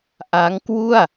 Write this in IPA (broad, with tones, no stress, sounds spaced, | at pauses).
ʔ a˦˥ ŋ k w u˥˩ a̯